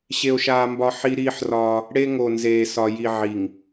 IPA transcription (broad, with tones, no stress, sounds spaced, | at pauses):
ɕ e˦ o̯ ʃ aː˦ m b ɒ˦ ħ i˦ ɾ iː˦ ħ r ɒː˦ | ɽ e˦ ŋ o˨ n z eː˨ s ɒ˨ j i˨ ʕ i˨ ŋ